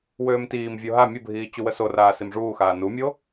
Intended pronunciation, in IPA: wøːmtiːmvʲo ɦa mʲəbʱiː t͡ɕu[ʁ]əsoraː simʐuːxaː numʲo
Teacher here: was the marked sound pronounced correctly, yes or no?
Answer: no